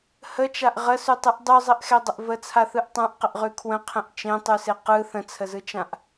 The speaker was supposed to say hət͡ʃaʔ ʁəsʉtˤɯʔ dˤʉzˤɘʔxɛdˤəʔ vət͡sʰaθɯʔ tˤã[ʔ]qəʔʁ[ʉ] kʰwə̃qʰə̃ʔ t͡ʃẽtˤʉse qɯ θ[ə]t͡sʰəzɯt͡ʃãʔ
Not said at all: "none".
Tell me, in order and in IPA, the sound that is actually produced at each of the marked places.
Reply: ʔ, ʉ, ə̃

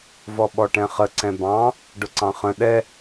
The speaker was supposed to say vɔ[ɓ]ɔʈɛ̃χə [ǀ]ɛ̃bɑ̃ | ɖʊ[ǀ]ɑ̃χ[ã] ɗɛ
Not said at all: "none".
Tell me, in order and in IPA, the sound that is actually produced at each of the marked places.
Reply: ɓ, ǀ, ǀ, ə̃

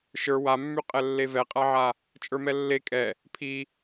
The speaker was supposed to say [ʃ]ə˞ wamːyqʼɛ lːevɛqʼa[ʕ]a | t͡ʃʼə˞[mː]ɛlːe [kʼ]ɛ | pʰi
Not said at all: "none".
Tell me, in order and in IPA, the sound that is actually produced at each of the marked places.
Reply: ʃ, ʕ, m, kʼ

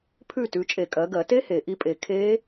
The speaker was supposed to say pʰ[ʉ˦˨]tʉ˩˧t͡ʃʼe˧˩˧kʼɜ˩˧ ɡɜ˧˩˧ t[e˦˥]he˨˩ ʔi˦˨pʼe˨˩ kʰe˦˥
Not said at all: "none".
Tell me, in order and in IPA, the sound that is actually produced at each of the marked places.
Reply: ʉ˦˨, e˦˥

